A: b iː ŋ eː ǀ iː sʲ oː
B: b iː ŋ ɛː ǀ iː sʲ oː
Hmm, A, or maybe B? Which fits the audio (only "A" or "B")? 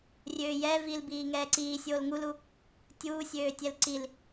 B